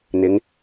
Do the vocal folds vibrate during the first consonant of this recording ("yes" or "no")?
yes